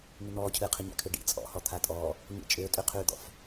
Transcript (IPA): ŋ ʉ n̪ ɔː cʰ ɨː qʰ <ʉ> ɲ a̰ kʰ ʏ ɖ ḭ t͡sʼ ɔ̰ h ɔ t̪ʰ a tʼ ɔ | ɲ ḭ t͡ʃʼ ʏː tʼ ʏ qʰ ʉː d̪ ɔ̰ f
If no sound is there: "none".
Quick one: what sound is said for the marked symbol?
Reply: ɨ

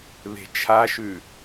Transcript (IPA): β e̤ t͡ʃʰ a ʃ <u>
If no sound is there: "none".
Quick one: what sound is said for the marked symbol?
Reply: ʉ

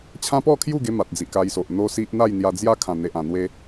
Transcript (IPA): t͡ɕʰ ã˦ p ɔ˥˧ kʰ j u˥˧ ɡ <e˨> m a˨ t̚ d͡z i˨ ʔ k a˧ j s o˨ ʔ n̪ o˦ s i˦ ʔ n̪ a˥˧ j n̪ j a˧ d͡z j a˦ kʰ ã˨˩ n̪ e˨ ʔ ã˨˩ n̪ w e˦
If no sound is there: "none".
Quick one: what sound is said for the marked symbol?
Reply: e˦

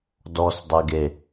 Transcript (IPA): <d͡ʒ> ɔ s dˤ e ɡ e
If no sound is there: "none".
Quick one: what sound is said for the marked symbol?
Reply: d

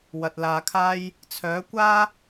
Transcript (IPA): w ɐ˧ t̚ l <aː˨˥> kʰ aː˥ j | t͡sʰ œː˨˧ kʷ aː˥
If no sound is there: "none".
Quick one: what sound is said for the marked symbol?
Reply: aː˧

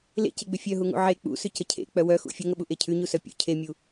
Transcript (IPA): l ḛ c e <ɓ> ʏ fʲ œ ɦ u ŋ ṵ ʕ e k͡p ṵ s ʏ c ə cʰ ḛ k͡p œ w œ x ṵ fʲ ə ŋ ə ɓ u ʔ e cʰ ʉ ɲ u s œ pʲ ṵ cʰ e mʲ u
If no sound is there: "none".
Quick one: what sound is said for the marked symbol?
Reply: ɡ͡b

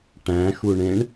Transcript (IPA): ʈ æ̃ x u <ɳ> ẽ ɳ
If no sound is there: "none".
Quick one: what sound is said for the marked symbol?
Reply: ɳ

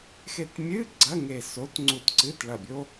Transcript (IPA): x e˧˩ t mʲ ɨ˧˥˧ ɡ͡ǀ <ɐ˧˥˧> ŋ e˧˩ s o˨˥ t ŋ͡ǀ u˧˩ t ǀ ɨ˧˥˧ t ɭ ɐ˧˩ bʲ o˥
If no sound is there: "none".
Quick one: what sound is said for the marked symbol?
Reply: ɐ˧˥˧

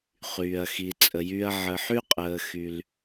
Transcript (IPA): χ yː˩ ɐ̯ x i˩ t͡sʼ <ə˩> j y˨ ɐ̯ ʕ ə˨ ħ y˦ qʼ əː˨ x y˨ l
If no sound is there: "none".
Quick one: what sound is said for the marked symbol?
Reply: ə˩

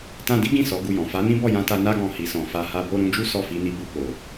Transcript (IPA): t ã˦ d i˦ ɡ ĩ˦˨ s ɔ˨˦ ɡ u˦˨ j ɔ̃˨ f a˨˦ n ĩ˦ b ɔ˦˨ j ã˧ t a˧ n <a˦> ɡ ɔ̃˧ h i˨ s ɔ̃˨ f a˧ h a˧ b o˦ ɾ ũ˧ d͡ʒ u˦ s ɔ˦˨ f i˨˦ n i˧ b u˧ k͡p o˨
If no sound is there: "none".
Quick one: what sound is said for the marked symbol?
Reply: a˦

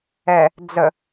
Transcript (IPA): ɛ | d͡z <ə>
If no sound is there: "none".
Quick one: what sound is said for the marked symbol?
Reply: ə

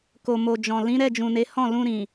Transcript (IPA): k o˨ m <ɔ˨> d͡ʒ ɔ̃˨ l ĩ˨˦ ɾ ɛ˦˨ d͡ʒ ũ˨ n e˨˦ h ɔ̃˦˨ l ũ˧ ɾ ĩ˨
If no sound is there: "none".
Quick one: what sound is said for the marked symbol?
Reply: o˨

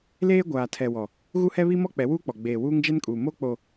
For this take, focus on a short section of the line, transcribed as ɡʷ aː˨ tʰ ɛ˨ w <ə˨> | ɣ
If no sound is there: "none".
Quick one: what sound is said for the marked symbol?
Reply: ɔ˨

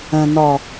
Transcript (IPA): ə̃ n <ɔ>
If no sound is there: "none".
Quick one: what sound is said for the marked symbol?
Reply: ɔ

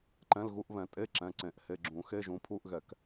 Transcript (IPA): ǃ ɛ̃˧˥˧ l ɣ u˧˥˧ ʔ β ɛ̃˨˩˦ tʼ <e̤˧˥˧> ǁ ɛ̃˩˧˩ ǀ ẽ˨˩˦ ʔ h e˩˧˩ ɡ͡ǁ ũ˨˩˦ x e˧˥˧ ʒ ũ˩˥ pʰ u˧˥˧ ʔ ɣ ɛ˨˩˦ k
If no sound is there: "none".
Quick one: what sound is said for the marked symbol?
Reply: e˧˥˧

